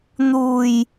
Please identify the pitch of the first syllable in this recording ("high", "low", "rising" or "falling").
low